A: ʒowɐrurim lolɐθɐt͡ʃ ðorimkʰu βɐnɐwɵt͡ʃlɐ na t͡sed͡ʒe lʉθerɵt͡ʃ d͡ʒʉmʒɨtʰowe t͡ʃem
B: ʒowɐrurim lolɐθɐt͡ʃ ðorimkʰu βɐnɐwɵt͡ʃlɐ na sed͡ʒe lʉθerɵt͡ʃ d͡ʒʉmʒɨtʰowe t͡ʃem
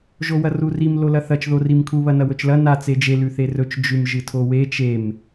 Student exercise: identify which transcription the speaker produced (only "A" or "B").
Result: A